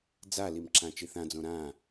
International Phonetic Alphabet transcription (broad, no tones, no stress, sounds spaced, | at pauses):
d͡z a l i m ǁ ã t͡ʃ i θ ã d͡z õ ɾ ã